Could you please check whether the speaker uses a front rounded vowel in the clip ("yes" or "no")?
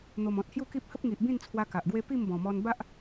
no